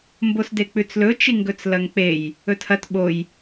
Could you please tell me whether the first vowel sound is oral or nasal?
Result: oral